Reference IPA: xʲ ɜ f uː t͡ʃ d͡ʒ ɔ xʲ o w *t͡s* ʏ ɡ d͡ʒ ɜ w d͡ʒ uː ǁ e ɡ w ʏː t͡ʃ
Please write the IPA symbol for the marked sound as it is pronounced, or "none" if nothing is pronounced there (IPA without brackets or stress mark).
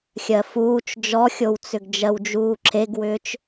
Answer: t͡s